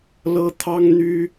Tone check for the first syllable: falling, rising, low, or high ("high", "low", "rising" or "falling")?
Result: high